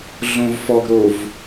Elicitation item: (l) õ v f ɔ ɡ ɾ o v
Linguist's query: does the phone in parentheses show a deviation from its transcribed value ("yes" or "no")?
yes